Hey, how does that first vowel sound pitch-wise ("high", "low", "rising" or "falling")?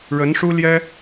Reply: rising